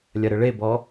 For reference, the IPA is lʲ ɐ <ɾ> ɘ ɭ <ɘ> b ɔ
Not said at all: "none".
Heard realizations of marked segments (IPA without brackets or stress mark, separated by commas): ɾ, e